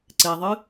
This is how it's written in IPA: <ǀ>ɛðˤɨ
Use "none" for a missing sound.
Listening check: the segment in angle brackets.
ǀ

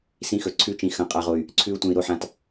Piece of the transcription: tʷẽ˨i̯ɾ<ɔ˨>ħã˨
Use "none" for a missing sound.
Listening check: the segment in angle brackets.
o˨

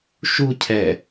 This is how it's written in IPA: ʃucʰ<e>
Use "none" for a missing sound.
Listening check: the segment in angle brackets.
ɛ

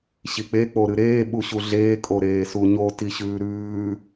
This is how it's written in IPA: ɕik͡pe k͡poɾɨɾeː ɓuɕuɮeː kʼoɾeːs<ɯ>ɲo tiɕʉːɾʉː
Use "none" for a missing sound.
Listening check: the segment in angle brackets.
u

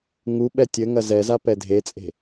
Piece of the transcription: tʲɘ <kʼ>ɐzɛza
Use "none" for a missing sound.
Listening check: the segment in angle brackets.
ŋ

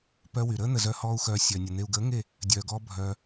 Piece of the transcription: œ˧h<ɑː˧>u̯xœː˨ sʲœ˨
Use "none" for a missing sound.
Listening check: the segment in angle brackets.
ɔː˧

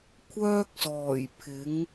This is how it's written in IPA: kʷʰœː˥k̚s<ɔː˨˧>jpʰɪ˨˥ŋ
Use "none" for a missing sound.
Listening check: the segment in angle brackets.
ɔː˨˩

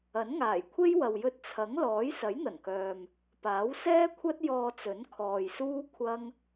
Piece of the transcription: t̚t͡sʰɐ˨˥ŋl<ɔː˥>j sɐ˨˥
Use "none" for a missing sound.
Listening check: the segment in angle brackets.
ɔː˨˥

